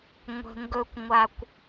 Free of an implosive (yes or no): yes